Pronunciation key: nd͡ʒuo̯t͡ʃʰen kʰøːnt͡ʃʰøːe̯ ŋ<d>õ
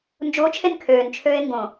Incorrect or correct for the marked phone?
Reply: incorrect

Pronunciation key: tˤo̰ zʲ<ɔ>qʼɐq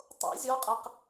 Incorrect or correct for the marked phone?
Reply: correct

